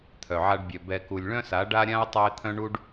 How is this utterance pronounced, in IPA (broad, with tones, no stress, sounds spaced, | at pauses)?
t̪ʰ œ˨ ʕ a˧ ɖ bʲ œ˨ b ɛ˨ k u˨ lʲ ɭ œ̃˦ s a˨˦ ɖ a˦ ɾʲ ã˦ ʊ̯ tˤ u˧ ɪ̯ t̪ʰ œ̃˦ ɳ u˦ ɖ